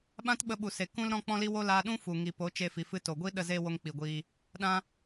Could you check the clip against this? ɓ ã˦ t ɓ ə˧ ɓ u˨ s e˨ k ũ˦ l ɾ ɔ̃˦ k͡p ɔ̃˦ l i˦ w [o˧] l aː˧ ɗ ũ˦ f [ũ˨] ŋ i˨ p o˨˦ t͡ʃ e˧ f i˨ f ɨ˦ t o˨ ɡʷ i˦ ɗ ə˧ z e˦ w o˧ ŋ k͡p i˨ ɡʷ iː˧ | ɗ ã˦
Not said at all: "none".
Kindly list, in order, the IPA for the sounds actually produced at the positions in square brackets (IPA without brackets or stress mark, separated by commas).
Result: o˦, u˨